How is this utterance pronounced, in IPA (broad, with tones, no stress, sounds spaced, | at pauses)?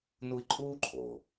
n u˦ i̯ ǃʼ uː˥ ǃʰ o˩